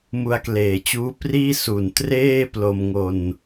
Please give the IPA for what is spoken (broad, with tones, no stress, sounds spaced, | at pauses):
m u˧ a̯ k l eː˨˩ t͡ɕ uː˦˥ p r iː˥˩ s u˨˩ n t r eː˥˩ p l o˧ m ŋ o˧ n